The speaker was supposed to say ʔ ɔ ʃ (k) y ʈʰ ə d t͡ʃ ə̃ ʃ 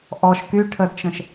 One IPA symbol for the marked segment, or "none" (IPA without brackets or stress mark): k